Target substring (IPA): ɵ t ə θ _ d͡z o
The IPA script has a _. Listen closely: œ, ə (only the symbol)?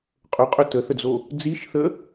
ə